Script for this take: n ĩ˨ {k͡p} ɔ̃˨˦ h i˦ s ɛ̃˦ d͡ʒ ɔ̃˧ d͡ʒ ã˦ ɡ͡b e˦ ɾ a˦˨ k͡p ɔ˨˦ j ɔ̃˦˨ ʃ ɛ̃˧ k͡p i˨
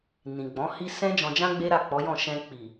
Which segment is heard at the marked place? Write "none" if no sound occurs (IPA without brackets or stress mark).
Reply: ɡ͡b